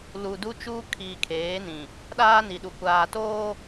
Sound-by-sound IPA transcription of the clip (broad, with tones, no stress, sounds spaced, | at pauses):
l u˨ d u˦ t͡ʃ uː˦ kʰ iː˨ kʰ eː˨˦ n ĩ˨ | ɗ aː˦ n i˨ ɗ u˨ kʷ aː˨ t oː˦